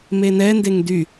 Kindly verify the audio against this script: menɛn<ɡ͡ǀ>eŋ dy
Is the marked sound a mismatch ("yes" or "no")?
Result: yes